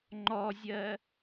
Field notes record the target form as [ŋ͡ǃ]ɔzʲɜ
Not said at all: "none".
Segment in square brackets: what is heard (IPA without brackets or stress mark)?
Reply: ŋ͡ǃ